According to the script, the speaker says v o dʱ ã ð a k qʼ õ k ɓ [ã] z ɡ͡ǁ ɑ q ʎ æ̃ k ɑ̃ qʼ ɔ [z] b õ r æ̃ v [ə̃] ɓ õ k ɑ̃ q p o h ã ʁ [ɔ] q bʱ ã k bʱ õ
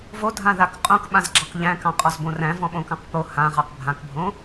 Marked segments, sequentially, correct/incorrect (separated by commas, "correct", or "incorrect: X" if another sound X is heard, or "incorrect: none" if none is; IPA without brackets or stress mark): correct, correct, incorrect: ɔ̃, incorrect: ɑ